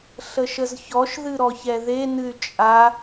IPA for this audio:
ɬ ə ʃ ə z ç ɔ ʃ ð ɨ ɾ ɔ ç ɛ ð e n ɨ y̯ t͡ʃʼ a

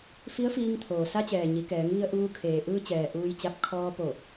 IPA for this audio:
f i˧˥ ə̯ f iː˧ ŋ t̪ʰ oː˩ s a˧ t͡ɕ ɛː˩ ɲ i˩˧ k ɛː˩˧ ŋ ʋ i˧ ə̯ ʔ uː˧ kʰ eː˩ ʔ ɯː˧ t͡ɕ ɛː˩ ʔ uː˧ j t͡ɕ a˧ p̚ kʰ ɔː˧ p o˧˩

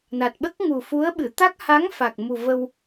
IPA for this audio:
n a˨˩ t̚ ɓ ə˦˥ k̚ ŋ u˨˩ f u˧˥ ə̯ ɓ ɨ˨˩˨ t̪ a˦˥ k̚ h a˧˥ ŋ f a˨˩ k̚ m u˨˩ v ə˧ w

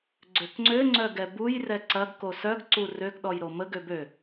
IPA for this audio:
ɡ͡ǀ ø k ŋ͡ǀ ø ŋ͡ǀ œ ɡ ɛ b u j r ɛ ǀ ɐ ɡ k o s œ ɡ ǀ u r ø ɡ ɗ ɔ j ɾ o m ə ɡ ø b ø

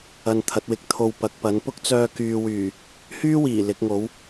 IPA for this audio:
ɐ˧ n t̪ʰ ɐ˨˥ t̚ w ɪ˨ k̚ t̪ʰ o˧ w p ɐ˨˥ k̚ p ɐ˨˥ n p ʊ˥ k̚ t͡s œː˧ k yː˨ w yː˨˩ | h yː˥ w iː˨˩ l ɪ˨˥ k̚ ŋ o˨˥ w

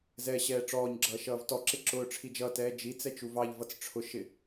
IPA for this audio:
z ɛː ɕ ɛː ʈ͡ʂ ɔː ɲ ɡ͡ǁ ʌː ʃ ʌː v t ɔ ǁ ɪ ǁ ʊː ʈ͡ʂʰ i d͡ʒ ʌ t ɛː d͡ʒ i t͡s ɛ t͡ʃ u v ɑ ʎ v ʌ t͡s ʈ͡ʂʰ ʊ ʃ ɪ

